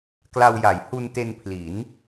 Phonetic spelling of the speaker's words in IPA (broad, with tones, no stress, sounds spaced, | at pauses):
k l a˧ w j a˩˦ j h u˧ n t e˧ n pʰ l i˩˦ n